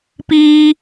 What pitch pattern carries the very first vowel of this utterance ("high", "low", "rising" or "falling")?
high